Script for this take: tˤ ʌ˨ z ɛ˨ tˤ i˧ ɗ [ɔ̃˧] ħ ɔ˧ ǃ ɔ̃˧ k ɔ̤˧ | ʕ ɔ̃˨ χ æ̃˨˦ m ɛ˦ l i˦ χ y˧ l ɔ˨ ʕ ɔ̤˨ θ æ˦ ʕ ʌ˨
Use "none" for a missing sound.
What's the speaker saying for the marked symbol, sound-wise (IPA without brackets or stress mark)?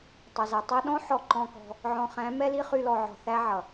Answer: ɔ̃˦